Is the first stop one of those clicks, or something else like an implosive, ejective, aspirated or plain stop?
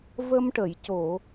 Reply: plain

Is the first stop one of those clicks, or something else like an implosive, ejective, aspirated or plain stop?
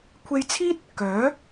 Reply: aspirated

